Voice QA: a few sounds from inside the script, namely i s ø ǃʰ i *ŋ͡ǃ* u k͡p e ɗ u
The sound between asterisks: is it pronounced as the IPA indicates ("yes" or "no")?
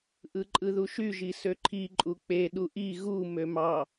no